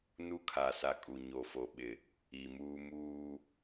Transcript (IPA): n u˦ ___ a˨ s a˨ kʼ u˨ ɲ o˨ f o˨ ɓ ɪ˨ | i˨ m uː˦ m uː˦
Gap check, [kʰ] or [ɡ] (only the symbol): kʰ